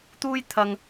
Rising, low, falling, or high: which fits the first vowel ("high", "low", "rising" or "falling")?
high